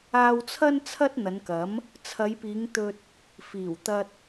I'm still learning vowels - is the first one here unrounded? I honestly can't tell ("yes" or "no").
yes